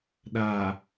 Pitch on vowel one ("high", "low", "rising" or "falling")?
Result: low